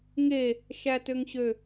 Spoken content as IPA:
ŋ e | ʃ æ t ø ŋ ɕ ø

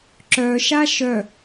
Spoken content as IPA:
ǁ œ ʃ a ʃ œ

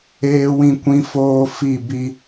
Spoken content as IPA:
eː˦ w ĩ˦ kʷ ĩ˦ f oː˦ f i˦˨ b i˦

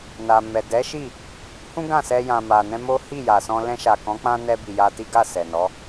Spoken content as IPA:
n a˨ m ɛ˨ d ɛ˨˦ ʃ i˦˨ | h ũ˦ ɡ ã˦˨ s ɛ˧ j ã˨ m a˨ n ɛ̃˧ m o˦ h i˦˨ j a˨ s ɔ̃˧ l ɛ̃˧ ʃ a˨ k ɔ̃˨˦ k͡p ã˧ n ɛ˧ b i˨ j a˧ t i˦ ɡ a˦˨ s ɛ˨ n ɔ˨˦

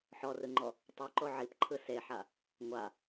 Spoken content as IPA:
ħ ɔ r ɯ ŋ͡ǃ ɔ | tˤ ɯ ǃ o ʕ i p ǃʰ ɯ s e ħ a | ŋʷ a

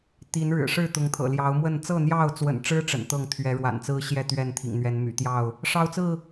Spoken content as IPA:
t̪ i˨˦ n ɻ ɻ̩˨˩ ʂ ɻ̩˥˨ t̪ ʊ˨˦ ŋ t̪ʰ ɤ̰˨˩ l j ɑ˨˦ ʊ̯ m w ə˥˨ n t͡s ɤ˥˨ n̪ j ɑ˥˨ ʊ̯ t͡s w ə̰˨˩ n ʈ͡ʂ ɻ̩˦ ʈ͡ʂ ə̰˨˩ n t̪ ɤ˥˨ ŋ t̪ʰ ɥ ɛ˨˦ ɻ w a̰˨˩ n t͡s ɹ̩˦ ɕ j ɛ˥˨ t̪ ɥ ɛ˥˨ n t̪ʰ ḭ˨˩ ŋ n̪ ɥ ɛ˨˦ n m y̰˨˩ t̪ j ɑ˥˨ ʊ̯ | ʂ ɑ˦ ʊ̯ t͡s ɹ̩˥˨

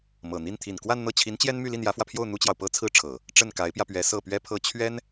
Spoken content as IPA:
m ɤ˨˩ n̪ i˥˩ n t̪ʰ i˨˩ n k w a˥˧ n n̪ ɤ˥˩ t͡ɕʰ i˧˥ n t͡ɕ j ɛ˥ n m y˥˧ l i˥˩ n j ä˧˥ f w ä˧ pʰ j o˥˩ ʊ̯ n̪ u˥ t͡ɕ j ɑ˨ ʊ̯ p ɤ˥ t͡sʰ ɹ̩˥˩ ʈ͡ʂʰ ɤ˨˩˦ | ʈ͡ʂ ə˥˩ n k a˧˥ ɪ̯ p j ä˧ p ɥ ɛ˧˥ s ɤ˥˩ p ɥ ɛ˥ pʰ ɤ˥ t͡ɕʰ ɥ ɛ˥ n

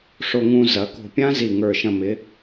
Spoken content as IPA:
ʂ o˧ ŋ ũ˧ z ɐ˩˧ k o̤˧˩ pʲ ã˦˥ z i˧˩ ŋ ə˞˧˩ ʃ ɐ̃˧ m ɪ˩˧

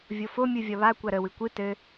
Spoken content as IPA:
vʲ o f o mʲ u vʲ ɒ β a kʷ a ɾ ə w ɨ kʷ ɨ t ɘ

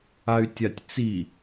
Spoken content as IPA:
a y̯ tʲ a tʲ t͡s i

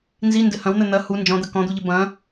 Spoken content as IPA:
n z i n d ɘ h ɐ̃ w n̪ ɘ n̪ ɐ h u n d͡ʒ ɔ̃ d̪ ɐ k ɔ̃ d̪ u ʎ ɘ b ɐ̃

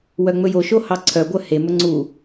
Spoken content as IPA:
w œ ŋ͡m ɵ j o ʃ o h ɑ ǀʰ œ ɡʷ œ h e m ɵ ŋ͡ǀ u

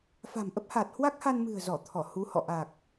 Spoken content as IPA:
f a̤˨˩ m ʔ ə˦˥ p̚ h aː˨˩ t̚ h w a˦˥ k̚ h a˧ n m ɨ̤˨˩ ə̯ z ɔ˧˩ t̪ʰ ɔ˧˩ h u˨˦ h ɔ̰˧˨ ʔ aː˨˩ k̚

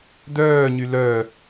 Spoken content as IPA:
d œː ɲ y l œ

